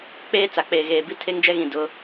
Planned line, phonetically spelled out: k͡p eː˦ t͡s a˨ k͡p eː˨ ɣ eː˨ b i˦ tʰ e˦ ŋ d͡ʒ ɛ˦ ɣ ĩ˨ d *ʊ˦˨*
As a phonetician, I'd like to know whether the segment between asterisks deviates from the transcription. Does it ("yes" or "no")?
yes